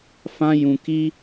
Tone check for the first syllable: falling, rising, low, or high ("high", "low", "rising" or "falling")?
high